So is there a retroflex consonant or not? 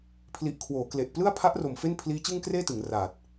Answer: no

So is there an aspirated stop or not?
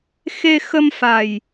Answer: no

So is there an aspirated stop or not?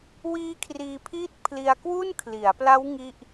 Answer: yes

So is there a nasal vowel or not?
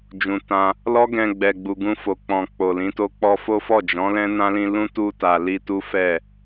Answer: yes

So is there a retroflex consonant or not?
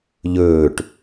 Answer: yes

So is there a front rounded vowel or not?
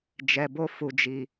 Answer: no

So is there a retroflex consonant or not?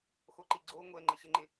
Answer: no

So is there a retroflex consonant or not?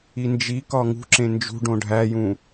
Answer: yes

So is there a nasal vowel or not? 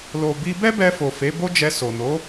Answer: no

